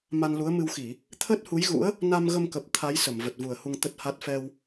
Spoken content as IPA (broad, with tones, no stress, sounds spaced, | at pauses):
m a˧ n l u˨˦ ə̯ m ɨ˧ w x i˧˩˨ | t̪ʰ əː˦˥ t̚ h u˨˦ j ɣ ṵ˧˥ ə̯ | n a˧ m ɣ ə˧ m k ə˨˩ p̚ t̪ʰ a˨˦ j s ə˧˩ m v ə˨˩ t̚ v u˨˩ ə̯ h u˧ ŋ t̪ ə˦˥ t̚ h a˦˥ t̚ f ɛ˧ w